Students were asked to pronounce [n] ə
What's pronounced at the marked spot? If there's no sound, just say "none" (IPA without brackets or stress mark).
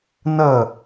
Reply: n